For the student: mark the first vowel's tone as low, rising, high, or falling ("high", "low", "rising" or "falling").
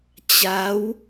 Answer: rising